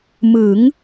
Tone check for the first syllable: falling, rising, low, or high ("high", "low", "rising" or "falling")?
rising